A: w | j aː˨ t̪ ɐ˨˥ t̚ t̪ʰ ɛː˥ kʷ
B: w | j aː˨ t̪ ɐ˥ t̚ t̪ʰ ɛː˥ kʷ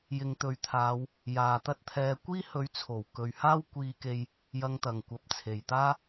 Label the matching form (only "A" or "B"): B